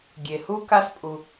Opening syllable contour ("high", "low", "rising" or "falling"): low